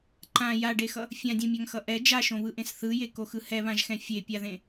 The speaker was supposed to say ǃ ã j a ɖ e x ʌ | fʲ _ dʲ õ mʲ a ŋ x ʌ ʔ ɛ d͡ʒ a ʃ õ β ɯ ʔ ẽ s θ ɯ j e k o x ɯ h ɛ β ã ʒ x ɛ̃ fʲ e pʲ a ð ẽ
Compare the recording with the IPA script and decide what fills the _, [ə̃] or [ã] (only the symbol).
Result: ã